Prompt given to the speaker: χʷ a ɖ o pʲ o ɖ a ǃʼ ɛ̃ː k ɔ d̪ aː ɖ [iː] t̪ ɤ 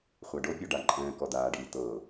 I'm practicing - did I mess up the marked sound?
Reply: no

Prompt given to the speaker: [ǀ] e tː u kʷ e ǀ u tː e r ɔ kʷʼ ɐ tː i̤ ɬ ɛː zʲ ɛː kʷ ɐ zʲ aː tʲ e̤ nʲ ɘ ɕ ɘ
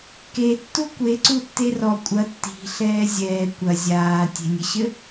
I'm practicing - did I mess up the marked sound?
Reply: yes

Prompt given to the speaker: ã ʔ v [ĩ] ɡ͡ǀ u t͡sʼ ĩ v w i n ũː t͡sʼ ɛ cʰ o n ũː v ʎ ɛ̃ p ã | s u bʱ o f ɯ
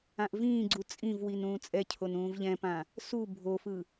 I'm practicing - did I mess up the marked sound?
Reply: yes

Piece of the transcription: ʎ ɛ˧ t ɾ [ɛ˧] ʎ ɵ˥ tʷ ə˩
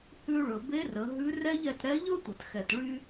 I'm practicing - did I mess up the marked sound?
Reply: yes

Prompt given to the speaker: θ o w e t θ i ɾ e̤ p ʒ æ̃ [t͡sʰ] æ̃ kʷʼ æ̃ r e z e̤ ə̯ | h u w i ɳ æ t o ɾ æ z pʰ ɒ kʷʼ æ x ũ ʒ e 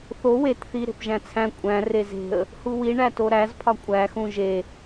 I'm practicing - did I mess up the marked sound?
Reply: no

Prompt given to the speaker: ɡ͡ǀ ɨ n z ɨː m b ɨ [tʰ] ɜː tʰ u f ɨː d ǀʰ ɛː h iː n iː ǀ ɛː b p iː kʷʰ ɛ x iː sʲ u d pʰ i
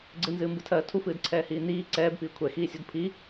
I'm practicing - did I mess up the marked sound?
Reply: no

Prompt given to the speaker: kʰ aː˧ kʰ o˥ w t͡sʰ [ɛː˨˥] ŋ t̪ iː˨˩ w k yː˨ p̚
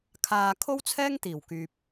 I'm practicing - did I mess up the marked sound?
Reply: yes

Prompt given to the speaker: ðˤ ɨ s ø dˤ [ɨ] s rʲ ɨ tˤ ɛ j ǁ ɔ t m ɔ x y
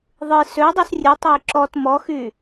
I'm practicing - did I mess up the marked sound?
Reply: no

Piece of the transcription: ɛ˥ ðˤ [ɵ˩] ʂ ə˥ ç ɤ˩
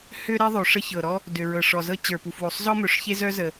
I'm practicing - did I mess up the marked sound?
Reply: yes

